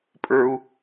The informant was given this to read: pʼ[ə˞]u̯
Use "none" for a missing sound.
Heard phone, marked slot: ə˞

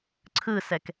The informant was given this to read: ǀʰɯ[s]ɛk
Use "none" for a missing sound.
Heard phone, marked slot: s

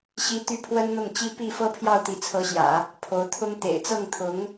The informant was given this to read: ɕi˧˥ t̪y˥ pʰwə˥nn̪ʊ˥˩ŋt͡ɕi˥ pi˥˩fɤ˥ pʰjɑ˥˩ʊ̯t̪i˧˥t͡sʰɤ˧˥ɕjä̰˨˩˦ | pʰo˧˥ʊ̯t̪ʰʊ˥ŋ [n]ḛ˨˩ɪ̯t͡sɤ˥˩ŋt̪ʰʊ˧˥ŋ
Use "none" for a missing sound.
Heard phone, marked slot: t̪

